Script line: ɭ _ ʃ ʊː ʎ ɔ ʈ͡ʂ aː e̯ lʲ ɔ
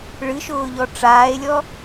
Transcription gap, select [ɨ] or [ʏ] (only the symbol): ɨ